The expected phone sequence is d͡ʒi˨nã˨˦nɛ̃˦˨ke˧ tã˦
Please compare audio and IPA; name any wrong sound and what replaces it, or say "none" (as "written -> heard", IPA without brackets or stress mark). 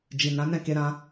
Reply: t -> ɾ